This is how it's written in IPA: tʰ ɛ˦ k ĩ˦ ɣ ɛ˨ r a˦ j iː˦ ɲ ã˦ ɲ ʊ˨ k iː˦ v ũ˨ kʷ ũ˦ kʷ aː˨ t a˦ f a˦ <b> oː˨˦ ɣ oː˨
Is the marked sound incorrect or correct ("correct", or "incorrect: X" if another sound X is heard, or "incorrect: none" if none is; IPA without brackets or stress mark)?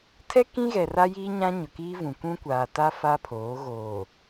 incorrect: pʰ